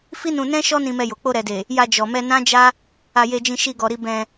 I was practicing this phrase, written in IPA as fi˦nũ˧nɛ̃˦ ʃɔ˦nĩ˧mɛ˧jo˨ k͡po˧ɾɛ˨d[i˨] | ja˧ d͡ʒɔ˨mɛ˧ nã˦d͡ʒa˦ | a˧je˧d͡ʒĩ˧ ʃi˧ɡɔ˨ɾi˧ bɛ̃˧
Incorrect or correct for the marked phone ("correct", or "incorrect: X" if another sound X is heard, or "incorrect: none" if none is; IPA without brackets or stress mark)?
incorrect: e˨